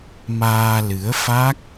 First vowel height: low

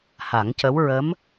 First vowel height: low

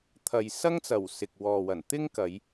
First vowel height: low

